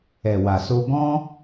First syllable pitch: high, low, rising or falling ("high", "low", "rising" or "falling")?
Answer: low